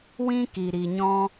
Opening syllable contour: high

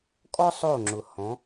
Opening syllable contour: high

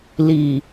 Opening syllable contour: low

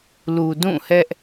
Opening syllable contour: low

